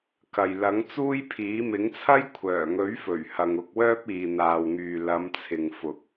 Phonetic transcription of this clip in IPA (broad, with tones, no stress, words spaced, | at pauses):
kɐ˨j lɐ˨˥ŋt͡suː˥jpʰiː˨˥ mɪ˨˥ŋt͡sʰɐ˥j kʷʰœː˨˩ŋɵ˨˥ɥ fɵ˨˩ɥhɐ˨ŋ ʊ˧k̚wœː˥p̚ iː˨n̪aː˨wŋyː˨ lɐ˨˧mt͡sʰɪ˨ŋ fʊ˨k̚